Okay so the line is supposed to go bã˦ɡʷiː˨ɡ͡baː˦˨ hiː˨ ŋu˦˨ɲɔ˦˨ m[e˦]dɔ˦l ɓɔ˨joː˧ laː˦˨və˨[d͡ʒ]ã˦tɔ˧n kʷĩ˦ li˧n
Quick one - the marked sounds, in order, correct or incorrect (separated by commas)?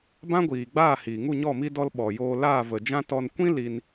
incorrect, correct